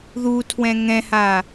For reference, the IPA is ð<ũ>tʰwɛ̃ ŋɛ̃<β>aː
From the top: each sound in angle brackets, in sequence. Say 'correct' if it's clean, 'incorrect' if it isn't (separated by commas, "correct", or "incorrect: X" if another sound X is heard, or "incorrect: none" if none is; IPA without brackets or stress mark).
incorrect: u, incorrect: h